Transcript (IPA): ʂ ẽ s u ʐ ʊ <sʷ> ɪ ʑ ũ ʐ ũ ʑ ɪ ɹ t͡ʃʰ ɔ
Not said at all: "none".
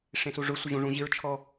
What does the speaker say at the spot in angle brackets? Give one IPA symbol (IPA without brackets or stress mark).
sʷ